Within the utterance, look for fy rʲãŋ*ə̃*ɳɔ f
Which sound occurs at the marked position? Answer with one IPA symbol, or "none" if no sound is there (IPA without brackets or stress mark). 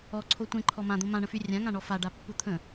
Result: ã